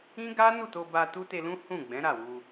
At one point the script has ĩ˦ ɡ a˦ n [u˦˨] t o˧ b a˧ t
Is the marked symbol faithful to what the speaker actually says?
yes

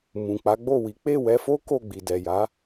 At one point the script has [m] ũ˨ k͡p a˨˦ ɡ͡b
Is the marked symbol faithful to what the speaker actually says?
yes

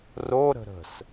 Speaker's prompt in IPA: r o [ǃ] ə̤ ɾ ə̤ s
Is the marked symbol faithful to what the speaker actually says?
no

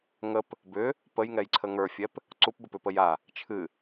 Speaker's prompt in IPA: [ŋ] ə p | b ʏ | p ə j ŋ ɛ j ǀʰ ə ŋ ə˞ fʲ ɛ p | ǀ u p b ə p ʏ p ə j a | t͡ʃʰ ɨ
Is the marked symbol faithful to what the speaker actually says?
yes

